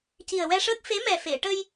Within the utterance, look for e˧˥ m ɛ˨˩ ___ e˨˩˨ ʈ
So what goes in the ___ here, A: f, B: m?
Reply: A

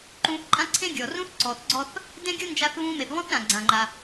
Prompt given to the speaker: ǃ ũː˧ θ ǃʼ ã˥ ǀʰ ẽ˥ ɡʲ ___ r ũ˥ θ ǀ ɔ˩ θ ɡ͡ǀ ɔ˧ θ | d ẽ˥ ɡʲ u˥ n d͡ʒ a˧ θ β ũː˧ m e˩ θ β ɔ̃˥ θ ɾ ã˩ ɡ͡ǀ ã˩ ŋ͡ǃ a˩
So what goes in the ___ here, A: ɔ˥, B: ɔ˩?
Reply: B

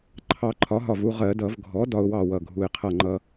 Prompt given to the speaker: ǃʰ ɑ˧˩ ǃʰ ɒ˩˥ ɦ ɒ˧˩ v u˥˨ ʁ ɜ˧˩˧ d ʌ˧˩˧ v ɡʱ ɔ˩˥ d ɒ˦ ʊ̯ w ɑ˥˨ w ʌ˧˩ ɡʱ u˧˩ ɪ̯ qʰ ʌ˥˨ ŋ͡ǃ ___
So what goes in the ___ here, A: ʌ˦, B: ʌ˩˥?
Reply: A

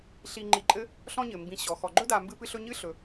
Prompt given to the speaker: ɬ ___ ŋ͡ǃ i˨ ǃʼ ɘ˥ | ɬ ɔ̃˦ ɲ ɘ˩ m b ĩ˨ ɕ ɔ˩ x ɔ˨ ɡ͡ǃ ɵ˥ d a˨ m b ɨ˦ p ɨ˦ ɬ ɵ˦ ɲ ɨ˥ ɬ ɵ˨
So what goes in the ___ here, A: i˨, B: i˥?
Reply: A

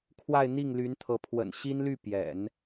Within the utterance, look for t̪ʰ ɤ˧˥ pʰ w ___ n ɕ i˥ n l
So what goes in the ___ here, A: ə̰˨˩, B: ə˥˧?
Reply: A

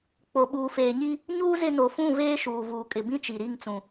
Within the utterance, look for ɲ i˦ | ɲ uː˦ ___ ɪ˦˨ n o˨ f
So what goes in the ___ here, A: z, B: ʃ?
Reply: A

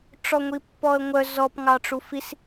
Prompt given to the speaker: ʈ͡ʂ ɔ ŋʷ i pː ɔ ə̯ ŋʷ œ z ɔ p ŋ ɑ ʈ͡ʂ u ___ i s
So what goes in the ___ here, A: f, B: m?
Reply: A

